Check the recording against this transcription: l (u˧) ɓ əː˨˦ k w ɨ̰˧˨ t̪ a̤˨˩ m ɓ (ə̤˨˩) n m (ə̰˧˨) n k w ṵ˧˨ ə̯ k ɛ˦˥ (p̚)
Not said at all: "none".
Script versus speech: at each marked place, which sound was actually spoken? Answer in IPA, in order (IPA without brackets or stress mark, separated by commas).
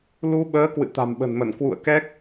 u˧, ə̤˨˩, ə˧˩, k̚